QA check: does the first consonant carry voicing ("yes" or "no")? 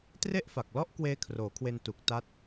no